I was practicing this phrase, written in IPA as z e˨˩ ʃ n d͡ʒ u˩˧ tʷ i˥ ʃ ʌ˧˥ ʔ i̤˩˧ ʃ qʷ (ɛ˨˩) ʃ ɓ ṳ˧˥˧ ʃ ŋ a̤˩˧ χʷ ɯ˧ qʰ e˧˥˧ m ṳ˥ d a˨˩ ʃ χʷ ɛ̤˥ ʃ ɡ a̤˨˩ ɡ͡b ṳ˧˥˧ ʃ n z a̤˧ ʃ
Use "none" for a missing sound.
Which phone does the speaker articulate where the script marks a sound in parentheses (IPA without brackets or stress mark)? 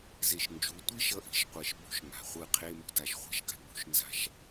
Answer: ɛ˨˩